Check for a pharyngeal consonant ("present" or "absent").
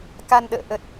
absent